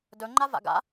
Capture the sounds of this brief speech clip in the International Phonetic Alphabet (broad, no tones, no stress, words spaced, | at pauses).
dɵŋ͡ǃa va̰ɡa̰